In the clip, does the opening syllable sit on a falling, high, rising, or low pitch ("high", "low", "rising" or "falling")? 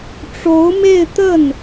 rising